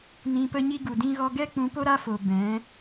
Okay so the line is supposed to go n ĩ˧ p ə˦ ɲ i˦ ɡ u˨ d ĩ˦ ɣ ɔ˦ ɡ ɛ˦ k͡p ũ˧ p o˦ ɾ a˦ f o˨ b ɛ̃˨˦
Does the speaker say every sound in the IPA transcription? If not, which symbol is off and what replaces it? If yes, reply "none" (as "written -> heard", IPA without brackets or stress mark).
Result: none